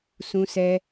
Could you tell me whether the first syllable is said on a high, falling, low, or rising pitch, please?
high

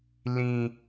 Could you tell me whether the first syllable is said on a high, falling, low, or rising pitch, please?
high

